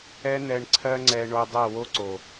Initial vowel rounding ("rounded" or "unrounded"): unrounded